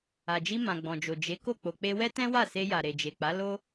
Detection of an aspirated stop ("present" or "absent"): absent